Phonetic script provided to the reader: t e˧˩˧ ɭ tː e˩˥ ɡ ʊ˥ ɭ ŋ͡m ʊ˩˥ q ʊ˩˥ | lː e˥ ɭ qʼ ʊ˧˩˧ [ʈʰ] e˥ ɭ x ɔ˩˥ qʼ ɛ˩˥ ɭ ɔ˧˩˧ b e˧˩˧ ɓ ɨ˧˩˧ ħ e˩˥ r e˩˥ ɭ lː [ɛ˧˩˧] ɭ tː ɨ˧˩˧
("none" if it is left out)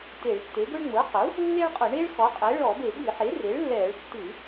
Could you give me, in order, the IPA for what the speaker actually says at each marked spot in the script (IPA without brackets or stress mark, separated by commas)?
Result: ɳ, ɛ˧˩˧